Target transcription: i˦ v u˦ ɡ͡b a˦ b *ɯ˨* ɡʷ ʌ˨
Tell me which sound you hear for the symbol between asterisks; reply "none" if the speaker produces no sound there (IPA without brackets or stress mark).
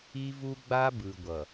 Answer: ɯ˨